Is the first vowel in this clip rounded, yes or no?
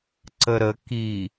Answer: no